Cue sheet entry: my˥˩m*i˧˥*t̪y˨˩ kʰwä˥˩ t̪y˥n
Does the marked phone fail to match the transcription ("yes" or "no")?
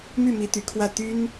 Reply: no